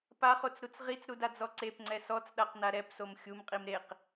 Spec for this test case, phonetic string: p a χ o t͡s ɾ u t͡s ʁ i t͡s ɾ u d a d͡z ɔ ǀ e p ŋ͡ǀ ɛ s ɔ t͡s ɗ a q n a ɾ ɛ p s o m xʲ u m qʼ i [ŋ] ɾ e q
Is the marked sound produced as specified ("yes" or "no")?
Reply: no